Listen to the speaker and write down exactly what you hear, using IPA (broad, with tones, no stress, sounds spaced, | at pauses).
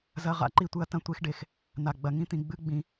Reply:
z ɐ˧ ʁ a̰˧ ǃ i˦ tʷ ɨ˧ ɐ̯ t ɐ̃˦ tʷ e˦ x ɖ e˧ x | n̪ a˨ ɡ͡b ɐ˨ ŋ ĩ˦ t̪ ĩ˨ ɡ͡b ɨ˦ ɡ͡b ĩ˧